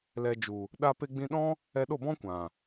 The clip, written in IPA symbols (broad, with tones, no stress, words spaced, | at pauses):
lɛ˨d͡ʒu˨ | ɗa˧ pe˧ɡ͡bĩ˧ɗɔ̃˦ | ɛ˧ ɗo˦˨bɔ̃˦kʷã˨